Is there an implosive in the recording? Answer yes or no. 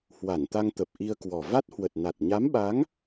yes